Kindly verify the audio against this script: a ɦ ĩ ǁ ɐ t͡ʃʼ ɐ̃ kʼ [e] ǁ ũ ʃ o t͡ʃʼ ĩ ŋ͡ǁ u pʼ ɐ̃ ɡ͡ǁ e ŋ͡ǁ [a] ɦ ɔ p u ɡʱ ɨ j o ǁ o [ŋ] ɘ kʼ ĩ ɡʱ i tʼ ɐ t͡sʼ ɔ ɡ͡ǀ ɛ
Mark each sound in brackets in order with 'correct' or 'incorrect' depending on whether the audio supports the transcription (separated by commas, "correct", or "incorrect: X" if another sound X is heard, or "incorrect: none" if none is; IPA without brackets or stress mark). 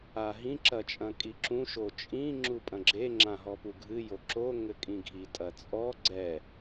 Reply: incorrect: i, incorrect: ã, correct